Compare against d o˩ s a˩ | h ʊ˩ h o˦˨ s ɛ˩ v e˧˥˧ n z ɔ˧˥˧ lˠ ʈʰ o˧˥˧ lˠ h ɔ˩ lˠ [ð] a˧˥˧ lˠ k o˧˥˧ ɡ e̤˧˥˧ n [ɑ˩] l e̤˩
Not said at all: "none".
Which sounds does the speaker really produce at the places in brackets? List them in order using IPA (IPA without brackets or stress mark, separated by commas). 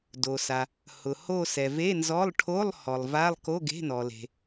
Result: v, ɔ˩